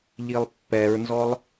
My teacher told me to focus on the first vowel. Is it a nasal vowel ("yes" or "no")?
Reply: no